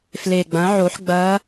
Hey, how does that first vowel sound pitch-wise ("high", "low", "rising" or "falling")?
low